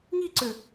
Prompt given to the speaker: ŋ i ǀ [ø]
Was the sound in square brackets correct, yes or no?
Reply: yes